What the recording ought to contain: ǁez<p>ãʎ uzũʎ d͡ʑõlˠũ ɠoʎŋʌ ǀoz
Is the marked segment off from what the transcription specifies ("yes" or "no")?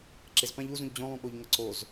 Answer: no